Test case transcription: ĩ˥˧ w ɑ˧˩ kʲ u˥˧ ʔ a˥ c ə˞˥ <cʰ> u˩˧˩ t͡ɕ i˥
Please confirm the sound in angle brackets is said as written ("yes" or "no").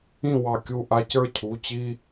yes